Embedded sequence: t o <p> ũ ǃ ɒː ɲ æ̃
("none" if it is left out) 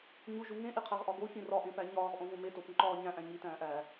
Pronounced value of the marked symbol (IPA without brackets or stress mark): p